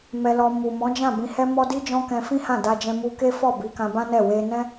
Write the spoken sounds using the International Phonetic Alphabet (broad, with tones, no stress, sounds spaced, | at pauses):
m ɛ˧ l ɔ˧ m u˨ m ɔ̃˨˦ d͡ʒ ã˦˨ b ĩ˧ h ɛ˦ m ɔ˦ d i˦ d͡ʒ ɔ̃˦ k ɛ̃˧ f ĩ˦ h ã˦˨ d a˧ d͡ʒ ɛ̃˧ m u˧ k e˦ f ɔ˦˨ b i˨˦ k ã˧ b ã˦ n ɛ˦˨ w e˧ n ɛ̃˦